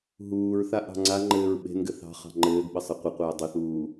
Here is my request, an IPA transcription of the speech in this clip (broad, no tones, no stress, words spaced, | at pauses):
ɦuːɹθa ʔɑ̤ŋ͡ǀaŋ͡ǃɘːɹ ɓe̤nɡɘ θɑ̤ χɑ̤ŋ͡ǃɘːɡɓə sˤɘqʷəqʷɘː dˤeθuː